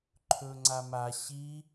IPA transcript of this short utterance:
ǃʰ ɵ ŋ͡ǀ a m a ɕ i

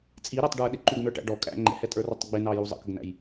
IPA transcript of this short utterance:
t͡sʼ i ɾ æ tˤ ɖ ə˞ ɗ ɪ ǃ u ɡ n ə˞ ʈ æ̰ ɖ ɔ kʼ æ̰ ŋ͡ǃ ɛ̰ h ɛ tʼ ə˞ r ɔ tˤ ɡ͡b ɪ n ɑ j u zˤ ə̰ k ə ɡ n æ̰ j

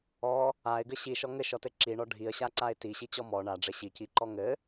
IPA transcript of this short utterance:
ɔ | a ɪ̯ ɡ ɘ ɕ i ʃ ɔ ŋ ɘ ʃ ɔ t ɘ ǁ i ɳ ɔ ɖʱ i ə̯ ɕ a ǀ a ɪ̯ t i ɕ i t͡ɕ ɔ m ɔ ɳ a ɖ͡ʐ ɘ ɕ i c i ǃ ɔ ŋ ɘ

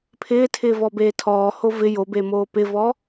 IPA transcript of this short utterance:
pʰ ɪː tʰ ɪː v ɔ b eː tʰ ɔː h o v ɪ j o b e m oː p ɪ v ɔ

